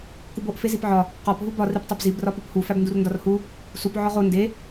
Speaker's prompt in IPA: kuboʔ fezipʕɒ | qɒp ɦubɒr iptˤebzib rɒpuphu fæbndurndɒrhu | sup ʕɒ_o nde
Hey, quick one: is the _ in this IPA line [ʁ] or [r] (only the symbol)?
ʁ